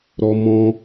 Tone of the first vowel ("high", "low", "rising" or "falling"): high